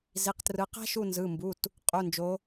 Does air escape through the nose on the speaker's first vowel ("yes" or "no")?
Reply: no